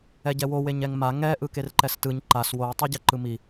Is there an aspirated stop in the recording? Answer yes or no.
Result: no